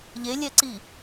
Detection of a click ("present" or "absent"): present